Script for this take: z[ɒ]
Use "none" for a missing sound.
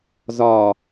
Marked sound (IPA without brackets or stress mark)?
ɒ